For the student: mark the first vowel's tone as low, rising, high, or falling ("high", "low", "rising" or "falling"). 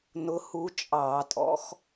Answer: rising